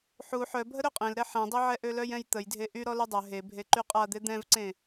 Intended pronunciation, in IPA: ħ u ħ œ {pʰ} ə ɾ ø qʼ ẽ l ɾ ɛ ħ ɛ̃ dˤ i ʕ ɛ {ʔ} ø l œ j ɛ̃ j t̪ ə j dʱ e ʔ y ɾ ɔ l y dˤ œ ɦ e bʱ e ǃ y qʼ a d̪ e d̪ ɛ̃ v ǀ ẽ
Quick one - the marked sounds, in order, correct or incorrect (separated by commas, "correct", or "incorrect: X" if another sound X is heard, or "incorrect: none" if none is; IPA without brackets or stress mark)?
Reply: incorrect: bʱ, correct